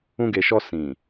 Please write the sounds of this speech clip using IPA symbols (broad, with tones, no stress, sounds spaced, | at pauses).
ũ˧ ɡ e˨ ʃ ɔ˧ s ĩ˨